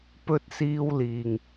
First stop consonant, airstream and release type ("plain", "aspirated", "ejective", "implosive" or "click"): plain